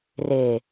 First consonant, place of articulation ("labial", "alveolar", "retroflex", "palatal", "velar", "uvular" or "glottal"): alveolar